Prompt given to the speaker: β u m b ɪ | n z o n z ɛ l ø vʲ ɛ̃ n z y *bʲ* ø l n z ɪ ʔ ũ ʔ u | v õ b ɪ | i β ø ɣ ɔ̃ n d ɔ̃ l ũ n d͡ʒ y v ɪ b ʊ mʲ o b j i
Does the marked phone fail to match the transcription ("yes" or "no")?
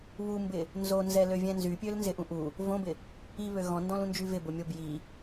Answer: yes